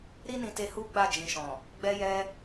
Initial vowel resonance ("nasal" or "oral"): oral